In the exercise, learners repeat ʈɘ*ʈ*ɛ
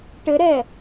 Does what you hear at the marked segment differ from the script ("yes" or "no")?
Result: yes